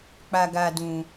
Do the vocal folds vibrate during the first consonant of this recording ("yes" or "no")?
no